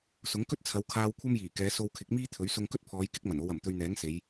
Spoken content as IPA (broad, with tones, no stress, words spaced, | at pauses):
sʊ˨˥ŋkɵ˥t̚t͡sʰɐ˨˧wkʰaː˧w kʷʰɐ˥mjiː˨˩kɛː˨˧ so˧wkʰɪ˨˥k̚miː˥t̪ʰɵ˨˥ɥ sʊ˧ŋkɵ˥t̚pʰɔː˨˧j kɪ˥k̚mɐ˨˩no˧wɐ˨˩m t̪ɵ˧ɥn̪ɛː˨˥ŋ se˨˧j